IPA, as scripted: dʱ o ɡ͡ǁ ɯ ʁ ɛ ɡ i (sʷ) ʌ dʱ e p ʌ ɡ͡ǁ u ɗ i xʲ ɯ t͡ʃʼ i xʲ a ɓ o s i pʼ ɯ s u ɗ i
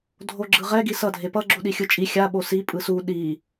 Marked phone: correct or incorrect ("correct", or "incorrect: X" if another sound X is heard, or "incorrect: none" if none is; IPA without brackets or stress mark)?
incorrect: s